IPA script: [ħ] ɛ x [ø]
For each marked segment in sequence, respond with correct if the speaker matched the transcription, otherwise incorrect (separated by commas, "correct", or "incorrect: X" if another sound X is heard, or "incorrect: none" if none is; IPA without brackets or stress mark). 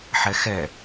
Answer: correct, incorrect: ɛ